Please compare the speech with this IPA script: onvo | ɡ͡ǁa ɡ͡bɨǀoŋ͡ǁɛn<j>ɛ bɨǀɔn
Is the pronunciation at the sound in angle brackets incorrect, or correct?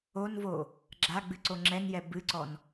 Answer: correct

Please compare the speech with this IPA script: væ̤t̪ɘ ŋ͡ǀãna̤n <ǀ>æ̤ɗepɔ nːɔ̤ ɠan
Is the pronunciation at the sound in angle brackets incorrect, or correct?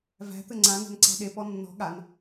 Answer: correct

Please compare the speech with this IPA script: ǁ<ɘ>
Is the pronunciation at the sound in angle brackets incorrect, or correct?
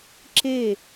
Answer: incorrect: e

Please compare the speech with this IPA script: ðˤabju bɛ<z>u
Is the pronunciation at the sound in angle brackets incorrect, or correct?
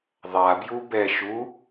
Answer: incorrect: ʃ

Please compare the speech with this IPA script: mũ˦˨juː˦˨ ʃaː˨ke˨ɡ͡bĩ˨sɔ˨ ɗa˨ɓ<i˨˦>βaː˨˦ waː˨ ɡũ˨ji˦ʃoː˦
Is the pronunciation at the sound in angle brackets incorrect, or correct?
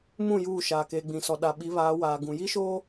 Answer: correct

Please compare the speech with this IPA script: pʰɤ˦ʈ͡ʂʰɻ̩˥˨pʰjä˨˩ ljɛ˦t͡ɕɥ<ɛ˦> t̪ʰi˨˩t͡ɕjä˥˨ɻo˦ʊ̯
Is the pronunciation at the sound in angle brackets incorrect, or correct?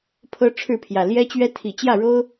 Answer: correct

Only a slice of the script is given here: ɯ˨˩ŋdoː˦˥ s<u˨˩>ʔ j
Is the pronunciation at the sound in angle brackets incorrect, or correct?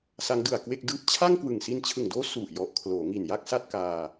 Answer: correct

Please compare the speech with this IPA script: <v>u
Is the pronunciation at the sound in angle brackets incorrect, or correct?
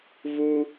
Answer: correct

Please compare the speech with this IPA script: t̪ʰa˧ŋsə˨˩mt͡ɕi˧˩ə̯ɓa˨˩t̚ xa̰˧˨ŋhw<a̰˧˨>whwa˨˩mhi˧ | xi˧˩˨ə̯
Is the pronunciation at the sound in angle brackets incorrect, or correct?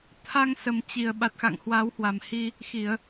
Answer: incorrect: a˨˦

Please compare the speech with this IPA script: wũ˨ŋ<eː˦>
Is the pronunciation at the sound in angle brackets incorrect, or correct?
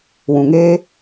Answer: correct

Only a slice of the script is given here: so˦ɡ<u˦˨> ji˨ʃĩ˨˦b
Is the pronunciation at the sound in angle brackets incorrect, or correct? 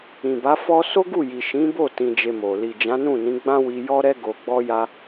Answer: correct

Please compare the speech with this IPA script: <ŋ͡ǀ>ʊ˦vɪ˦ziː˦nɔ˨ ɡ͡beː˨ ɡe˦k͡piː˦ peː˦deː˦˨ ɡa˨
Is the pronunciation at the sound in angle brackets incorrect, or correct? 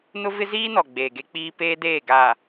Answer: incorrect: n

